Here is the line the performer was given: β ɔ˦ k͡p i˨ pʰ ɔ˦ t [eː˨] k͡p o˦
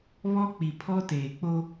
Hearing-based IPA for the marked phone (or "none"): eː˨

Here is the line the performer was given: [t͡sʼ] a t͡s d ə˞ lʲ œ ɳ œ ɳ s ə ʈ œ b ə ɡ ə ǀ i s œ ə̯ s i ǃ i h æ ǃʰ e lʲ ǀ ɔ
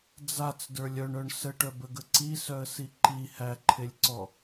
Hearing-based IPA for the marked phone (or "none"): d͡z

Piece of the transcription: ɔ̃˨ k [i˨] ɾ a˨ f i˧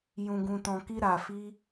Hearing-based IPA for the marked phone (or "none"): i˧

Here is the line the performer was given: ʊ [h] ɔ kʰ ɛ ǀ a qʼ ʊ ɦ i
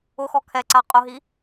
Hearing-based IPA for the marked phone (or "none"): x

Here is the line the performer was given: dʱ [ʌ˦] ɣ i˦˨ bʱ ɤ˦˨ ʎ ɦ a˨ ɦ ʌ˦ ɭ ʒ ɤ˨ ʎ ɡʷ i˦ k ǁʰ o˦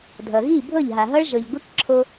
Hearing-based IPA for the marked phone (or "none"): ʌ˨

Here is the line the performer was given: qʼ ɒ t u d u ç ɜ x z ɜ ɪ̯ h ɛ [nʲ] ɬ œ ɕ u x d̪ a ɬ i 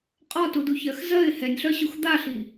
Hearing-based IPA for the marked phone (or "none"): nʲ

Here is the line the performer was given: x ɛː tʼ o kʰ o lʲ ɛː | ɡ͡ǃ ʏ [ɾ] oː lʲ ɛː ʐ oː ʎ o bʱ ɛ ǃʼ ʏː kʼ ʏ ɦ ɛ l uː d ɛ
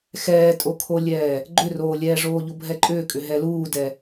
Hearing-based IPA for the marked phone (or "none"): r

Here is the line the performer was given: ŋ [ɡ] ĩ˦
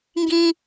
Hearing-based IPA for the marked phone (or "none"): ɡ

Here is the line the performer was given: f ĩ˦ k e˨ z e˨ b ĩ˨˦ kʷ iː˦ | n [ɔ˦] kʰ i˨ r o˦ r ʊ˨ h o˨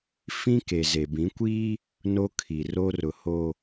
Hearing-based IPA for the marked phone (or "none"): o˦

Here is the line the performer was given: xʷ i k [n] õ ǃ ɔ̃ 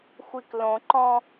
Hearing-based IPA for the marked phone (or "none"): l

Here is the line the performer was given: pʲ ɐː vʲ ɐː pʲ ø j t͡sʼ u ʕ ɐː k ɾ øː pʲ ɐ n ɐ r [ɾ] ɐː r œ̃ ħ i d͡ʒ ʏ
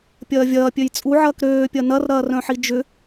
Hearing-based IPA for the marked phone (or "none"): ɾ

